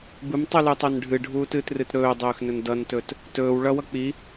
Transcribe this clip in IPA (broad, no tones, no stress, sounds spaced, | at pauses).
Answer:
b ɨ m tˤ u l u tˤ ɵ n ɖʱ ɨ ɖʱ uː t ɨː t r ɨ t ɾ ɵː dˤ ɵː x n ɵ n d ʌ n t ɵ t | t ɵː w ɭ ʌ w ʌ k͡p i